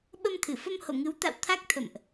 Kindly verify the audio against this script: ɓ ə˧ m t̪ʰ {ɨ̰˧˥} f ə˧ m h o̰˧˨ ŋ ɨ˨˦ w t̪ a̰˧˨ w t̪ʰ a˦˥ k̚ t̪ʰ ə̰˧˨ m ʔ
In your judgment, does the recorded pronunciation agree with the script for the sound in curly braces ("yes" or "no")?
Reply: no